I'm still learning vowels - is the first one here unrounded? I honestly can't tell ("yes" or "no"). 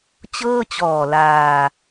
yes